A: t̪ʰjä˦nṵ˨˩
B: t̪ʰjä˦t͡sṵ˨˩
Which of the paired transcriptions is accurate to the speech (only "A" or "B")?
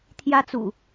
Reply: B